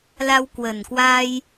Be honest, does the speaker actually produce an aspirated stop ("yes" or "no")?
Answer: no